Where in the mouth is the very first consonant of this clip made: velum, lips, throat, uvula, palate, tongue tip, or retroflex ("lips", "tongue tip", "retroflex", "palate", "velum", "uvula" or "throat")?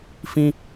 lips